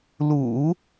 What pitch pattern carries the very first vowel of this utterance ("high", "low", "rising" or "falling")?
low